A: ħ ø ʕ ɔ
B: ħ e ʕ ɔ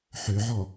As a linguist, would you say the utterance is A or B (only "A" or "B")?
A